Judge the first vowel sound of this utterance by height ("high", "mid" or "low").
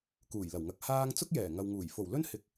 high